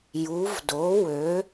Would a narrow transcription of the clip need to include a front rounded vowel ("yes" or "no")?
yes